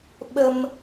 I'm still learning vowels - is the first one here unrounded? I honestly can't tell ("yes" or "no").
yes